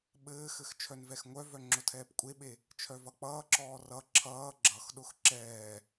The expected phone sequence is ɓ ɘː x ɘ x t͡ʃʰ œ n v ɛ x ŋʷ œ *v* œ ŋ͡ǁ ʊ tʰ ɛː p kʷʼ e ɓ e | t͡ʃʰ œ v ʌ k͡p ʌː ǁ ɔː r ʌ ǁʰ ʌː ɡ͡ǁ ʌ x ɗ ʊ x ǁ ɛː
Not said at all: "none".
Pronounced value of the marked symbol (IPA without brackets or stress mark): v